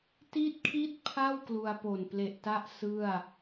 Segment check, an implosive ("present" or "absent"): absent